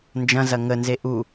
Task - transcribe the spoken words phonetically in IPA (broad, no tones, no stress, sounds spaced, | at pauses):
n d͡ʒ ɐ̃ z ɐ ŋ ə n z e ʔ u